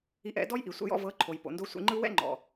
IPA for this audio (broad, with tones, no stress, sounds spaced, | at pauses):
i˧ ʔ ɛ̰˨˦ d ɔ˦ j ʔ i˨ sʷ ɛ̰˧ j ɔ̰˧ v ɤ˨˦ ǃʰ o˨ j p o̰˨ n d o˧ sʷ ḭ˧ ŋ͡ǃ ɯ˦ w ɛ̰˦ ŋ͡ǃ ɔ̰˨